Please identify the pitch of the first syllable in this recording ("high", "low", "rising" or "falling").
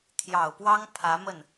low